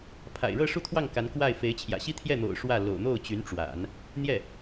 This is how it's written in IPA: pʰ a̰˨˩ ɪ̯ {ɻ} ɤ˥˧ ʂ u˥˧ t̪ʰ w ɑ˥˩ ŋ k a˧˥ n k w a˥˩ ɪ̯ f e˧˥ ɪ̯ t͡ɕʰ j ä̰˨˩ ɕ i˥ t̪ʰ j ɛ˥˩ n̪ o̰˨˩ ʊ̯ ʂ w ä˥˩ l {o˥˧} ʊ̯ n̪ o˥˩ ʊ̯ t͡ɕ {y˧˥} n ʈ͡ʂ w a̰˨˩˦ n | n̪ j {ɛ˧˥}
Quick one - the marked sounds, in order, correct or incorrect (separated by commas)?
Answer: correct, incorrect, correct, incorrect